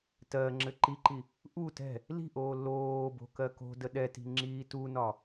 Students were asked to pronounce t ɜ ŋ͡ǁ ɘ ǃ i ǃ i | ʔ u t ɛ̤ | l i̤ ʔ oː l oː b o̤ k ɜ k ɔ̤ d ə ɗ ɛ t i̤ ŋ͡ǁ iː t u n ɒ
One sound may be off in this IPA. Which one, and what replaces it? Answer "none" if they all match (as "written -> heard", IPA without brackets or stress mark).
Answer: ɔ̤ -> o̤